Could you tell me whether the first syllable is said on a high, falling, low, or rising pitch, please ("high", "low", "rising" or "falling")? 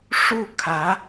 falling